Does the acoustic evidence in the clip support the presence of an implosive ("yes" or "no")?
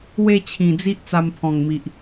no